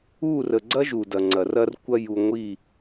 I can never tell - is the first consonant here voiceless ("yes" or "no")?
no